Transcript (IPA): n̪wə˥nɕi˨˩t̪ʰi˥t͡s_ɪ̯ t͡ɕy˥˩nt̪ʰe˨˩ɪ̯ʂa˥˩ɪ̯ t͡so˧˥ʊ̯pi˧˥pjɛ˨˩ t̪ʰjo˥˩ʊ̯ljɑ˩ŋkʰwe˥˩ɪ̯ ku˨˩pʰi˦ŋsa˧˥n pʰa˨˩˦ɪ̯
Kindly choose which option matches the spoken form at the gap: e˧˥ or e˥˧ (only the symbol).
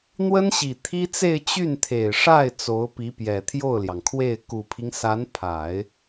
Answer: e˥˧